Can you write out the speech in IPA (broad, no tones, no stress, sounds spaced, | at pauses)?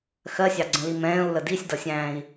x ɜ sʲ ɑ ɡ͡ǀ ə̃ l i m ɛ̃ː u̯ l ə d i sʲ d ʌ sʲ æ̃ː i̯